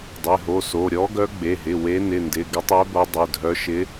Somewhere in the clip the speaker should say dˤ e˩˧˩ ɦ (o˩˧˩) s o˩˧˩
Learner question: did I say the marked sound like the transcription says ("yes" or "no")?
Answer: yes